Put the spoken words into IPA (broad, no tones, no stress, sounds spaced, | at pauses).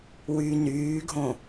w y n yː ɡʱ õ